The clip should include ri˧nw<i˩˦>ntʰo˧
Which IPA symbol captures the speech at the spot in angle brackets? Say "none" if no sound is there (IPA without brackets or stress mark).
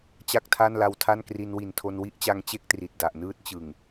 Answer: i˨˩